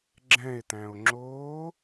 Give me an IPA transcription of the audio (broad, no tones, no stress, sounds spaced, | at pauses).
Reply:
ɡ͡ǁ ɛ̃ e̯ t̪ æ̃ o̯ ŋ͡ǁ oː